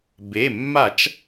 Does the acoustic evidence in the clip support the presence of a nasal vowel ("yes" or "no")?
no